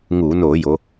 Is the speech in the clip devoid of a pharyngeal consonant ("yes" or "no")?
yes